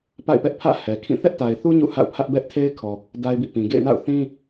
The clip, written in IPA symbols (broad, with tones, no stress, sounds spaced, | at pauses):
p a̰˦˨ ɪ̯ p ɛ˦ ʔ pʰ ä̰˦˨ h ɛ˨ kʰ ĩ˦˨ θ ɛ˦ ʔ t a˨ ɪ̯ θ u˦ ɲ ṵ˦˨ h a̰˦˨ ʊ̯ pʰ ä˦ ʔ b ɛ˦ ʔ tʰ e˦ ɪ̯ kʰ ɔ˨ | d a˦ ɪ̯ b ḭ˦˨ p ĩ˨ ɡ ḛ˦˨ ɪ̯ n a̰˦˨ ʊ̯ θ ĩ˦